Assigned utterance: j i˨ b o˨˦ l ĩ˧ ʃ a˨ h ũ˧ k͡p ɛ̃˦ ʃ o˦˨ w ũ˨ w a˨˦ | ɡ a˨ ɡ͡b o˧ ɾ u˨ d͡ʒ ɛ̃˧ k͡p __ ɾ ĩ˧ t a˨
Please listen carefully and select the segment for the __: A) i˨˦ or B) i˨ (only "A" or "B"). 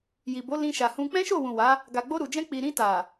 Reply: B